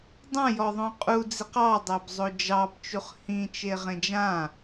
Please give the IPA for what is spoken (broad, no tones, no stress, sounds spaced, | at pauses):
dˤ ã j ɔ ðˤ õ qʼ u d͡z i q ɑ dˤ æ b zˤ o d͡ʒ ɑ b t͡ʃ u χ h ĩ t͡ʃ e ʁ ẽ d͡ʒ ã